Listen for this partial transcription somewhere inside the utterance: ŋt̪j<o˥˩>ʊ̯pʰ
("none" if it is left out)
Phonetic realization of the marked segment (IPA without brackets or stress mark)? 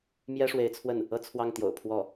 o̰˨˩